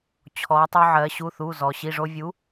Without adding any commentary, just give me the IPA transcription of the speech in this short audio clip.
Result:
t͡ɕʰ ɔ˩˧ tˤ o˧ ʕ ɜ˩˧ ɕ u˩˧˩ θ u˩˧˩ z ɔ˩ ɕ i˩˧˩ ʐ o˧ vʲ u˨˥

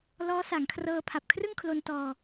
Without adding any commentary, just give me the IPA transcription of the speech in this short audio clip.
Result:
l ɔː˦˥ s a˩˦ ŋ kʰ r ɤː˧ pʰ a˨˩ p̚ kʰ r ɯ˥˩ ŋ kʰ l o˧ n t ɔː˧

